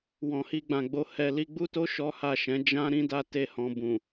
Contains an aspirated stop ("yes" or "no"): no